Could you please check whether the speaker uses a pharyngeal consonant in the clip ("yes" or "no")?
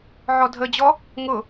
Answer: yes